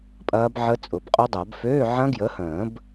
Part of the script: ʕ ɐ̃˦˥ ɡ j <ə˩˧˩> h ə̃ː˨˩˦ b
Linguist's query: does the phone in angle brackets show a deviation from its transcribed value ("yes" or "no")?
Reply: yes